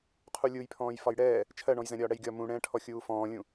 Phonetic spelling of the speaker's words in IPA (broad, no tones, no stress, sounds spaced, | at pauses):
qʰ u lʲ u j pʰ ɔ̃ː j f ɒ j ɽ ɛː | t͡ʃʰ ɜ ɳ ɔ̃ j z ɛ̃ ɾʲ ɒː ɽ ɛ j ɡʲ ɒ m ũ ɽ ɛ̃ː ʈʰ ɔ xʲ uː f ɔ̃ː lʲ ũ